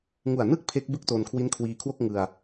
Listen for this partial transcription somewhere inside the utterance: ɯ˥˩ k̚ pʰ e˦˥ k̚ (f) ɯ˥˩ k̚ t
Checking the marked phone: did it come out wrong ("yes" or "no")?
yes